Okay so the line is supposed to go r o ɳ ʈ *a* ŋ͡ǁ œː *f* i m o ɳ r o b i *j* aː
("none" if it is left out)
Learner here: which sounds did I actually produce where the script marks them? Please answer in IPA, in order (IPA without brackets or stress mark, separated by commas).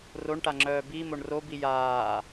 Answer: a, b, j